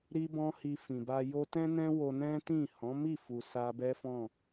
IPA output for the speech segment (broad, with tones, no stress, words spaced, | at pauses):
ɾi˦bɔ̃˦ hi˧fĩ˨ba˧ jo˧tɛ̃˦nɛ̃˦ wo˧nɛ̃˦tĩ˦˨ hɔ̃˨˦mi˦˨fu˨ sa˧bɛ˦fɔ̃˦˨